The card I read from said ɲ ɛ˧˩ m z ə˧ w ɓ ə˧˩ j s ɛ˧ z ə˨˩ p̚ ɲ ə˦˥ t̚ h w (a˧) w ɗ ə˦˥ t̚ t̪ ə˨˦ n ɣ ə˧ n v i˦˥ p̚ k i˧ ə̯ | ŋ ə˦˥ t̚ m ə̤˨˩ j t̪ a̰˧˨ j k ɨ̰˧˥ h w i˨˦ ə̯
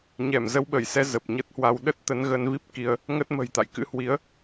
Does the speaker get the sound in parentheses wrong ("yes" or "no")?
no